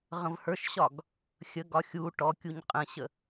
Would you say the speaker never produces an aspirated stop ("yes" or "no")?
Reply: yes